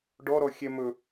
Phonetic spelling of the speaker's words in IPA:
ɖɔɾɔ xʲɛmɵ

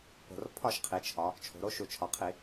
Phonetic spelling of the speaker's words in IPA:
po̤˨˩r pʰɒ˥˨ʃqʰi˩˧t͡ʃʰɒ˩˧ | t͡ʃʰo̤˩˧ɾo˩˥ ʃu˨˩t͡ʃʰɒ˨˩qʰi˧˩˧

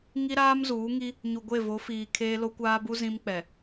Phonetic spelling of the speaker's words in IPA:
ŋi˦ ɾaː˦mzuː˨˦ŋi˦ | ɲu˨ɡʷe˦˨vo˨˦fiː˨ kʰeː˦lo˦kʷaː˦bu˦ zĩ˦mk͡pɛ˨

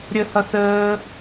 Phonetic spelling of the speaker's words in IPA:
ɾʲəhʌs əː

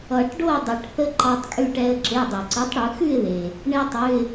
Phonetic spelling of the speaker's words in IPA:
ʌ˨˩˦ʈ ɖo˥˨ə̯dˤʌ˨˩˦ʈθə˦ ǃɑ˦tˤkʼʉ˦ʈɛ˦ə̯ ǁe˩˧˩dˤe˩ǀɯ˩˥tˤ ɽɯ˩˥ xʉ˥˨ɪ̯ðe˩ | ɳe˦tˤʉ˩˧˩ɪ̯

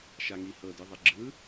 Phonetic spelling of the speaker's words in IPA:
ʃaŋihɤ dɯðˤeɡ͡ǁɯ

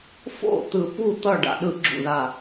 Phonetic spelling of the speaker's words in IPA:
fo̰˥˩ t̪ɯ˨˩pu˥˩ t̪ʌ˥˩ ɖa̰˨˩ɗɯ˧˩˧ɡ͡ǁṵ˨˩ða˨˩

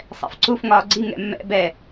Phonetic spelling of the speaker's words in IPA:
sˤɛ̰fǀuf ŋɒːɡ͡ǀi ŋɛ̰mːɛ̰ bɛ

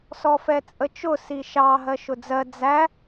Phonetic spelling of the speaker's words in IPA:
sɔfɛt͡sʼət͡ʃʊ siʃɑ ɦɜʃʊd͡zɜ d͡zæ

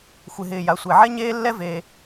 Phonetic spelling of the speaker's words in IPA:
xʷɪ˩ɦɪː˩ja˩ sʷe˩ʕɛ˥ ɲeː˥lːɛ˥veː˩

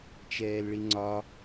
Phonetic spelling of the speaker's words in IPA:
t͡ʃɛːlɭiŋ͡ǀɒ

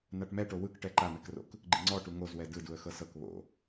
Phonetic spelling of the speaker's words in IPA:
naʈmɛʈo wɯkʈɛ ǃamɛkro̰k | ɡ͡ǃiŋ͡ǀɔʈu ŋozwɛ dɯduə̯ xɤsɤk βo̰

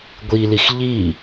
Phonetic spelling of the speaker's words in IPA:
ɡʷilix ʎi

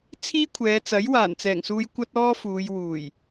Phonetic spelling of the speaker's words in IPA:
t͡sʰiː˥kʷʰɛː˨˧t͡sɐ˨˥j waː˨˩nt͡sɛː˨˩ŋsuː˧j kʷɐ˥t̚ɔː˥fuː˨˧j wuː˨˩j

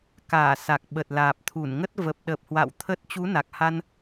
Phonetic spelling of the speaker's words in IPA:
kaː˧˩sa˨˩k̚ ɓə˨˩t̚laː˨˩p̚t̪ʰu˧˩nŋə˦˥t̚ və˨˩p̚ɗə˨˩p̚hwa̰˧˨w t̪ʰə˦˥t̚ t͡ɕu˨˦na˨˩k̚ha˧n

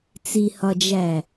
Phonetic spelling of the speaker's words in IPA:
t͡sihɒd͡ʒæ

